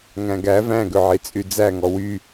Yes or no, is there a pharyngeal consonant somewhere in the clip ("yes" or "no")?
yes